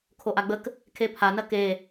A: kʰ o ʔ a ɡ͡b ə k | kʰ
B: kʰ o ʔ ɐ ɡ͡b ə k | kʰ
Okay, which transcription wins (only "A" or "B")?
A